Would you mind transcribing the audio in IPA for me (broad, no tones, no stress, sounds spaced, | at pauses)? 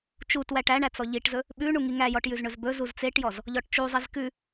t͡ʃ u t w æ ʈ æ ɳ æ t͡s ɔ ʎ i ʈ z ɵ | ɓ ʉ ɳ u ŋ i ŋ æ j ɔ ʈ j ʉ z ɳ ɵ z b ɵ z u z t͡s e ʈ j ɔ z | ʎ ɔ ʈ t͡ʃ u zˤ i z k ʉ